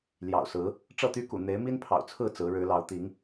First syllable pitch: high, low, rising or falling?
low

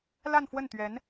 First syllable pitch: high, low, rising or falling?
falling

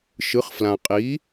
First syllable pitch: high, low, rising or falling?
rising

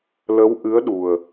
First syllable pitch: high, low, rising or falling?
rising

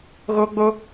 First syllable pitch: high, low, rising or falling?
high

